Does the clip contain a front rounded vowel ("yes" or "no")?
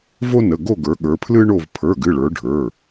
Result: no